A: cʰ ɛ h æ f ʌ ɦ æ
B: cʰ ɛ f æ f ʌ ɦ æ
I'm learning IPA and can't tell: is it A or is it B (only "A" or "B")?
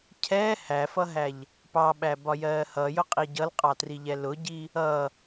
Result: A